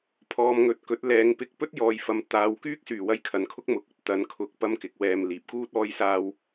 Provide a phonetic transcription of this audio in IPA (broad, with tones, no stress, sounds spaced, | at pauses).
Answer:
pʰ ɔː˨ m ŋ ɵ˨ t̚ k ɵ˨˥ t̚ l ɛː˨˧ ŋ p ɪ˧ k̚ p ɵ˥ t̚ j ɔː˨ j f ɐ˨ m t̪ aː˨˧ w k yː˥ k̚ s yː˨˩ w ɐ˧ j kʰ ɐ˨˧ n kʰ ʊ˥ k̚ m ʊ˨˥ k̚ ɵ˥ t̚ t̪ ɐ˨˥ n kʰ ʊ˨˥ k̚ p ɐ˥ m k ɪ˨˥ k̚ w ɛː˧ m l iː˨ p̚ k uː˥ t̚ ɔː˥ j s aː˥ w